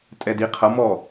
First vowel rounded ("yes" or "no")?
no